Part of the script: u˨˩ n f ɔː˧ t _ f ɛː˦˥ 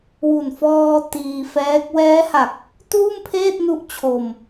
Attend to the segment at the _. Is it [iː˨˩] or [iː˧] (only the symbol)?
iː˧